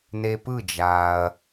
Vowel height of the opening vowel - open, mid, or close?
mid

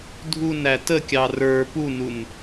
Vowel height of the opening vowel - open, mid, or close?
close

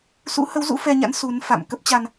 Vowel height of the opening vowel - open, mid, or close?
close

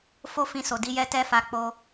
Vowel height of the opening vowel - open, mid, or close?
mid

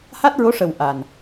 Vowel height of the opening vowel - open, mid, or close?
open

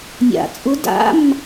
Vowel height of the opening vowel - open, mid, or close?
open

